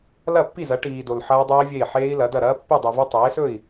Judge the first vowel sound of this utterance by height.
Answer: low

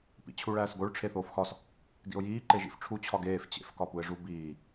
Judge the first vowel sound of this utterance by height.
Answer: high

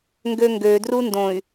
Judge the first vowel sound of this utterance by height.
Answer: mid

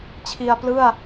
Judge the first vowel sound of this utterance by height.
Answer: high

